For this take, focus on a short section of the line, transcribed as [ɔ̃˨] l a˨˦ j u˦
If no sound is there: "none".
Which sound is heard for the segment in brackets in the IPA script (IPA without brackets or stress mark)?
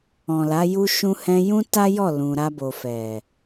ɔ̃˨